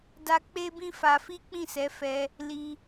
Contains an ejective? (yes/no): no